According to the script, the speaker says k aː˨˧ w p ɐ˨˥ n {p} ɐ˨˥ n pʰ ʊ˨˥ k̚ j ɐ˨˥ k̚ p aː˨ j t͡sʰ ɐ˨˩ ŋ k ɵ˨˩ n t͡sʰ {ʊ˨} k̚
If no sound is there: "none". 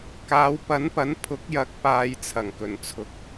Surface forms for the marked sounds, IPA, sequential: p, ʊ˧

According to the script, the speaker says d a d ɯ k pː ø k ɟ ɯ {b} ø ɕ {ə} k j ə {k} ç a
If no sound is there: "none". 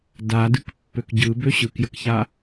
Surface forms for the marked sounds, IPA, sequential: b, ɯ, k

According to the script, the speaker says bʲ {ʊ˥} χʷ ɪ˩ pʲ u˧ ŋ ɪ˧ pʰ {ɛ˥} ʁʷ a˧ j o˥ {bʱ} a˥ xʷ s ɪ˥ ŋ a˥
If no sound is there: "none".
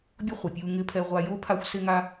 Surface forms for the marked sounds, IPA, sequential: ʊ˥, ɛ˧, pʰ

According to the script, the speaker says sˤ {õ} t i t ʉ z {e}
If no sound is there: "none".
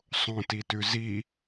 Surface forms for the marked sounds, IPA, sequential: õ, i

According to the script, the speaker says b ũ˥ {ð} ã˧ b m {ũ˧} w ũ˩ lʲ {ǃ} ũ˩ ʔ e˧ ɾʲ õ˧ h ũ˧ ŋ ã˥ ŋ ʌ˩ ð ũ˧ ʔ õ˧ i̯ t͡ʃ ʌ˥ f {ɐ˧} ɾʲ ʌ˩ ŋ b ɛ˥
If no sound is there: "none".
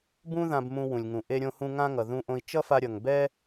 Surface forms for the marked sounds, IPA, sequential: ð, ũ˧, ŋ, a˧

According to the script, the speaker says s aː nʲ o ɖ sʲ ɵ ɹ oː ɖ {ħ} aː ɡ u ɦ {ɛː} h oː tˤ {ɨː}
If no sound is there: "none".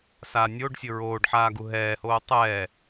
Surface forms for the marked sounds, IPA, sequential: ħ, ɛː, ɛː

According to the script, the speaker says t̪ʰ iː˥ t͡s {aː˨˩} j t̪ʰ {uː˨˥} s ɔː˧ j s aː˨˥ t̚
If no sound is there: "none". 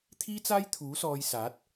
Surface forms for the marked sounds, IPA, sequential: aː˥, uː˨˥

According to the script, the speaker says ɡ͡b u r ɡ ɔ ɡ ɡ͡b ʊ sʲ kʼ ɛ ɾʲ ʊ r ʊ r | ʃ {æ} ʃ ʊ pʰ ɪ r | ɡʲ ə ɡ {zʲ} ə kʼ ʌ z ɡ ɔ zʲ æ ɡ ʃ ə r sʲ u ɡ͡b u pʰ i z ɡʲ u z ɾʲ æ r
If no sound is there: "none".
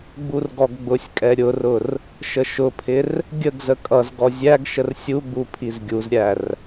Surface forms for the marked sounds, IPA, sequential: ə, z

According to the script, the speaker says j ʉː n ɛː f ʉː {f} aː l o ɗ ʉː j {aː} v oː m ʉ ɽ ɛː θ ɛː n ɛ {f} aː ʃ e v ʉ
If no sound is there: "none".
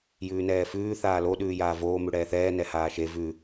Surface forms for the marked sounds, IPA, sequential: θ, aː, h

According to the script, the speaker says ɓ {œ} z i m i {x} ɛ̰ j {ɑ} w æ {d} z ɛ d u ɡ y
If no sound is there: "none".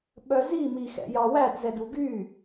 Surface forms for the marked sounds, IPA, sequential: œ, x, ɑ, d

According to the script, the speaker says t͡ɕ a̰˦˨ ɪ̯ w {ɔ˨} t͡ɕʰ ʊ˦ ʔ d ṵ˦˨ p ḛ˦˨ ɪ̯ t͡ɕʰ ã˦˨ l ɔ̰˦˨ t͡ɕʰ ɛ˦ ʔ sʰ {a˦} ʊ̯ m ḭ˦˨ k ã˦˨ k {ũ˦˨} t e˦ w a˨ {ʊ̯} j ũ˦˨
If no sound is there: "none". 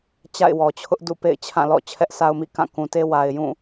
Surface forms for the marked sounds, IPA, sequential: ɔ˨, a˦, ũ˨, ɪ̯

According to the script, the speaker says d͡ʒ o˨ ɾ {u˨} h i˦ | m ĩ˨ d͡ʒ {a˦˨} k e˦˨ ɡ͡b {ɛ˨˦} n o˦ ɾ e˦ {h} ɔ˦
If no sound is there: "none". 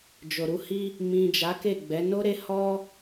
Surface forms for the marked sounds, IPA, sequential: u˨˦, a˨˦, ɛ˨˦, h

